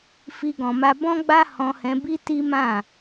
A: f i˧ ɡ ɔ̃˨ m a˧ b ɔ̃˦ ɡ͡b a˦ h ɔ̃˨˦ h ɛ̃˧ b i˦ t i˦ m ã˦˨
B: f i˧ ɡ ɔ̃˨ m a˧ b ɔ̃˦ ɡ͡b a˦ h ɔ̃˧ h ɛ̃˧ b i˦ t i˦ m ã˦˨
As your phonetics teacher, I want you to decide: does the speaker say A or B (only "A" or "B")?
B